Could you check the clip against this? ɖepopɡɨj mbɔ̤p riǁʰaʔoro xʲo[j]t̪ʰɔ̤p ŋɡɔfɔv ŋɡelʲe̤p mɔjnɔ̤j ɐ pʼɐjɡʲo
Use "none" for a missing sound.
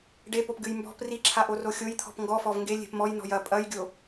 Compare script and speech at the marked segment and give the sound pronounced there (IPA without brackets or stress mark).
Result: j